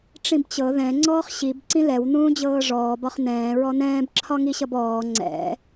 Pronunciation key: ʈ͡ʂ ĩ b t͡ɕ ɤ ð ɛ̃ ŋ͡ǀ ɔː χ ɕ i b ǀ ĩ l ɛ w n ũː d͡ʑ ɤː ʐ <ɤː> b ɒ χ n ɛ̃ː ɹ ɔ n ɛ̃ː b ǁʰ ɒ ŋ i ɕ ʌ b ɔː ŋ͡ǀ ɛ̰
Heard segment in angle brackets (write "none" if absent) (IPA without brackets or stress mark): ɔː